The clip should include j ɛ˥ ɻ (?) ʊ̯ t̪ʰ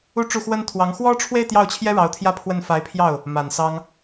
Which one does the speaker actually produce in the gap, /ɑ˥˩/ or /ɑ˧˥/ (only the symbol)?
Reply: ɑ˧˥